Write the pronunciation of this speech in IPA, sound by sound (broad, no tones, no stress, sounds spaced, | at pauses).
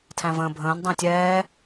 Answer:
tʰ æ̃ v ə̃ː bʱ ə̃ː n dˤ ə̃ː tʲ ɛː